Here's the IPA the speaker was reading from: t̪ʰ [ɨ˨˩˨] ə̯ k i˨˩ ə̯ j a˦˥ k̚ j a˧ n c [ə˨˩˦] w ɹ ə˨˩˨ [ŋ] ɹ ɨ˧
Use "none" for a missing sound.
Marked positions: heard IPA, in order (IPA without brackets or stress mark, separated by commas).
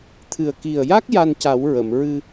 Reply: ɨ˨˩, a˨˩˦, m